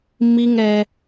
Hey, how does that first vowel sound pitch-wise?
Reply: high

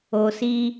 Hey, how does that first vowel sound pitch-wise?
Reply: low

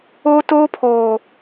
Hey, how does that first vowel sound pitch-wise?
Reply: high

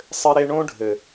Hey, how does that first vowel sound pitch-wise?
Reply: high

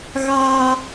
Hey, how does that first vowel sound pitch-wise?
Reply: high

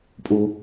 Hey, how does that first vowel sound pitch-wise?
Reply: high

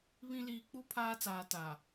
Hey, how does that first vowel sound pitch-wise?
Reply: high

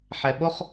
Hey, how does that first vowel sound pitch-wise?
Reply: low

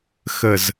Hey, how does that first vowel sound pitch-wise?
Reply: low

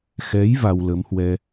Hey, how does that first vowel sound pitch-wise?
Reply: rising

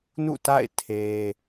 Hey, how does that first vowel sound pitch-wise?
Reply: falling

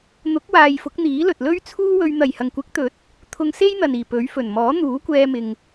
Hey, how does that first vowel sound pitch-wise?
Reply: rising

